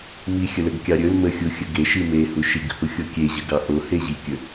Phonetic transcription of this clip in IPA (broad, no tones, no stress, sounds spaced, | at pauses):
m i xʲ ə l ə ɡ kʲ ɑ ɾʲ ɵ l m ə xʲ u xʲ ə ɡ e ʃ i m e h u ʃ i ɡ h u xʲ o kʲ e ʑ ə ɡ ɑ ʔ o h e ʑ i kʲ ɵ